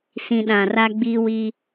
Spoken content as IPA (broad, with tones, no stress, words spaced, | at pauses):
sĩ˨ ɗã˨ra˦ɡ͡biː˦wi˦